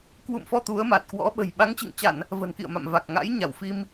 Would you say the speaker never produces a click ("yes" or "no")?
yes